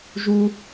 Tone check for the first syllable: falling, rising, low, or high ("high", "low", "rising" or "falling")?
high